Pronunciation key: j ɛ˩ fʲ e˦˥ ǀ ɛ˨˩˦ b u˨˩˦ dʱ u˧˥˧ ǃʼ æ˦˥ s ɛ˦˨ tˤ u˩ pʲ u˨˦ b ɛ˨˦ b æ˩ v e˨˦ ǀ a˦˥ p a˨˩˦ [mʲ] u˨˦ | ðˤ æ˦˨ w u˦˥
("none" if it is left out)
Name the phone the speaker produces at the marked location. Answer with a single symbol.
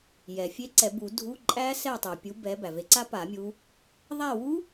mʲ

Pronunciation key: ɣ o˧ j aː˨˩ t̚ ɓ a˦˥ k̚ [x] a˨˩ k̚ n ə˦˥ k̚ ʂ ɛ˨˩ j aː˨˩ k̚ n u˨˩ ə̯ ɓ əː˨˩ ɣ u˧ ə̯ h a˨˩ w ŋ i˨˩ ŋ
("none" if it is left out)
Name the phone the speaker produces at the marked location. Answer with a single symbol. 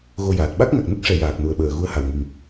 ŋ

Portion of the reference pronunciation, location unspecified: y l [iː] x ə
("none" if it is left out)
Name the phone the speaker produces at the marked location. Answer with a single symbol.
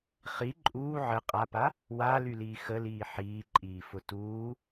iː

